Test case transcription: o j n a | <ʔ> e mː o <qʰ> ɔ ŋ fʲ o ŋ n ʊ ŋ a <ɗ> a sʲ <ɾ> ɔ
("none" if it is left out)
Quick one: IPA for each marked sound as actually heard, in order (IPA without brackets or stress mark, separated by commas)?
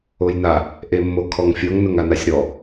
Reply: ʔ, kʰ, n, ɾ